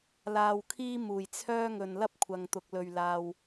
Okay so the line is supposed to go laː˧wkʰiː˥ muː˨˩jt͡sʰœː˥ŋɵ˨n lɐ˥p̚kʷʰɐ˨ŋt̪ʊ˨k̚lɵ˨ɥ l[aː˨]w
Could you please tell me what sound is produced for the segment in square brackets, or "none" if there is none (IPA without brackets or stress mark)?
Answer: aː˨